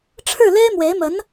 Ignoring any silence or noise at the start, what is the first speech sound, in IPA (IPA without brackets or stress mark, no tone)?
ʈ͡ʂʰ